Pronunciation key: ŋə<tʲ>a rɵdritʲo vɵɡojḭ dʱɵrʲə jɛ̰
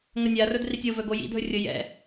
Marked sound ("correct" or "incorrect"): incorrect